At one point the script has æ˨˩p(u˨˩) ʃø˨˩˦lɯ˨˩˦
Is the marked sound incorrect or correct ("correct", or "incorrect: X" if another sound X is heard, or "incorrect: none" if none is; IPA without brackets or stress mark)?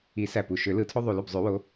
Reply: correct